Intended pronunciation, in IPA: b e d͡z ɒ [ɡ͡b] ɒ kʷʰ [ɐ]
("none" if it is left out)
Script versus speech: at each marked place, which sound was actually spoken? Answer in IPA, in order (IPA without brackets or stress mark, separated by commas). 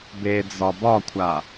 b, a